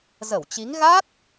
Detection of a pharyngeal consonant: absent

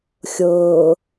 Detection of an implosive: absent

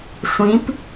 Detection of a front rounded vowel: absent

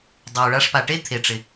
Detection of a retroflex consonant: present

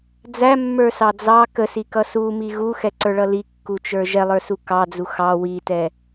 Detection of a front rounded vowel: absent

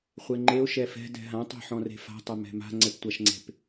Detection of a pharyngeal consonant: present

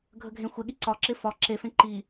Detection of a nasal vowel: present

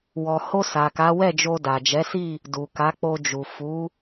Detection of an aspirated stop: absent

